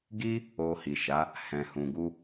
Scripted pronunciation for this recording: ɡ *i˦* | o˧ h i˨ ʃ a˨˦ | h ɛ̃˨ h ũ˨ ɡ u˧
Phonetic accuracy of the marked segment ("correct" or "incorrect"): correct